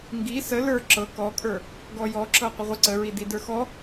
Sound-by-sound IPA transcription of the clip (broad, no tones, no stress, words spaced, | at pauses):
ŋɡi sə lə˞ ǁɤ kɔkʼə˞ | ɡɔjɔǁɤ qʷəʁʷə ǀəɹi didə˞xɔ